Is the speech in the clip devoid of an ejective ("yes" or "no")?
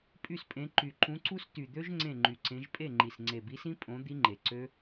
no